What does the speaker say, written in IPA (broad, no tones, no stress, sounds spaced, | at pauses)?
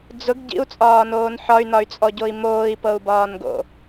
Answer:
d͡z ʊ ɡ ɟ ḭ u̯ t͡sʼ ɒː n oː n ħ ɒ y̯ n ɒ y̯ t͡sʼ ɔ ɟ o i̯ m oː i̯ p ɤ u̯ b ɒː n ɡ o̰